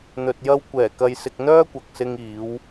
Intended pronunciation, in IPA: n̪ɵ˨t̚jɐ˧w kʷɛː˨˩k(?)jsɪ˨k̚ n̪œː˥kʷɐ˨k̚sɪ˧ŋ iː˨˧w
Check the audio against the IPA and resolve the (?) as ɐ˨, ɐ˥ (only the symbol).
ɐ˨